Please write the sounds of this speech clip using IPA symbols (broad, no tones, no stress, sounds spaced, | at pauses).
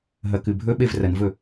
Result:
ɦ ɐ k ɨ bʱ ɵ ɓ e v r ɐ n v ɵ